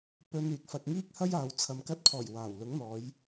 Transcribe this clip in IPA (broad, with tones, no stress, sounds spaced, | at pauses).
p ɵ˧ n yː˨ k̚ f ɐ˧ k̚ ŋ iː˥ k̚ h ɐ˥ j aː˨ w t͡sʰ ɐ˨ m k ɐ˧ t̚ pʰ ɔː˨˩ j w aː˨˩ w l ʊ˨˥ ŋ n̪ ɔː˨˧ j